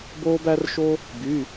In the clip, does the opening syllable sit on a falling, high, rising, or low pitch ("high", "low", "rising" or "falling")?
high